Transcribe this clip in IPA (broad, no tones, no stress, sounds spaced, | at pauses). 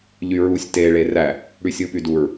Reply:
ʎ y ɹ u sʲ t e ɭ e r æ | ɽ y sʲ ɯ p y d u ɹ